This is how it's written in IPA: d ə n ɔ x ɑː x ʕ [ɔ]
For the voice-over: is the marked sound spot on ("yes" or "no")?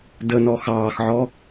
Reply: yes